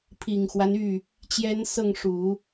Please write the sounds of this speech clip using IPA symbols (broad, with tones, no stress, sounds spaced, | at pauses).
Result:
pʰ i˨˩ ŋ x w a˦ n y˥˩ | t͡ɕ j ɛ˥ n s ɤ˥˩ ŋ ʂ u˨˩˦